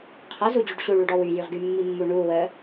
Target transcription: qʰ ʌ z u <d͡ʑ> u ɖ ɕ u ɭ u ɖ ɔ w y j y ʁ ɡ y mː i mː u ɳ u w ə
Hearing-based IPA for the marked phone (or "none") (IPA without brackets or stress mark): d͡ʑ